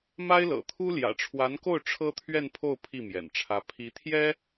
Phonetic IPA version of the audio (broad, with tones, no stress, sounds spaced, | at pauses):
m a˥ ɪ̯ l ɤ̰˨˩ t̪ʰ u˥ l j ä̰˨˩ ʈ͡ʂʰ w a˧˥ n k o˥˩ ʊ̯ ʈ͡ʂʰ ɤ˥ t̪ʰ ɥ ɛ˥˧ n pʰ o˥˧ ʊ̯ pʰ i˥˩ m j ɛ̰˨˩ n ʈ͡ʂʰ ä˧˥ pʰ i˧˥ t̪ʰ j ɛ˥